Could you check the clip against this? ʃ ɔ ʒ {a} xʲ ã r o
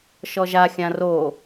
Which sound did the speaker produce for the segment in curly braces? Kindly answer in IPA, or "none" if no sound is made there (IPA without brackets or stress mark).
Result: a